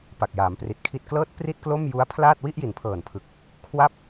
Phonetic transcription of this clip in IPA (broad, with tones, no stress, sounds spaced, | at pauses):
p a˨˩ k̚ j aː˩˦ m p r i˨˩ t̚ kʰ i˨˩ t̚ k l ɤː˦˥ t̚ p r i˥˩ t̚ k l o˥˩ m j u˦˥ a̯ pʰ l aː˥˩ t̚ w i˥˩ ʔ j i˩˦ n pʰ ɤː˨˩ n pʰ ɯ˨˩ k̚ | kʰ w a˦˥ p̚